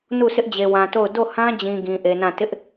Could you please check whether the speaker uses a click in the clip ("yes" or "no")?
no